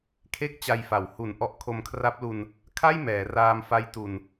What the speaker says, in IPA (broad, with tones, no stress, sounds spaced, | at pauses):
kʰ e˥˩ k̚ t͡ɕ a˧ j f a˩˦ w h u˨˩ n ʔ ɔ˦˥ ʔ kʰ o˧ m kʰ r a˦˥ p̚ l u˧ n | kʰ a˥˩ j m ɛː˩˦ r aː˧ m f a˦˥ j t u˨˩ n